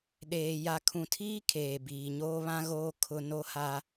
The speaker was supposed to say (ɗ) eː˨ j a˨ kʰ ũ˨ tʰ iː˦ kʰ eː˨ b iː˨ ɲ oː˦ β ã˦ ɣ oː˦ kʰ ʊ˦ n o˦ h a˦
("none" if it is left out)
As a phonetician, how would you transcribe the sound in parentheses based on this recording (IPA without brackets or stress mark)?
ɗ